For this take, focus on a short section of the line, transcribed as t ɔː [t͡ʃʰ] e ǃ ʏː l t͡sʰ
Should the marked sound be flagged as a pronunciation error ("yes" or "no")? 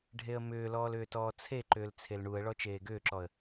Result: yes